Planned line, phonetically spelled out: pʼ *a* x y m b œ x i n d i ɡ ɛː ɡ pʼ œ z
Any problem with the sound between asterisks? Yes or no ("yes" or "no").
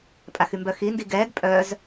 no